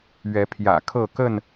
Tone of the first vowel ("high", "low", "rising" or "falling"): rising